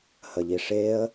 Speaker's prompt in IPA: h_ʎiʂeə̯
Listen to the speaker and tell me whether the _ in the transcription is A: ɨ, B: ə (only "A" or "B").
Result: B